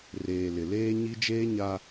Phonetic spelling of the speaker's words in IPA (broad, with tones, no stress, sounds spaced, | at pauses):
r eː˨ l ɪ˨ l eː˦ ɲ i˦ d͡ʒ eː˦ ɲ a˦